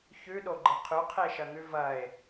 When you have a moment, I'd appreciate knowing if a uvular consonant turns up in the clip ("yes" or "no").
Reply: yes